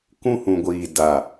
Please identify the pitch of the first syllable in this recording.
high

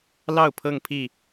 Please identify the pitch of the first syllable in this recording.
falling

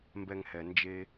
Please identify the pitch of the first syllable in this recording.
low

